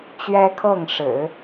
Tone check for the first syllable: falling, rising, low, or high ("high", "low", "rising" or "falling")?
high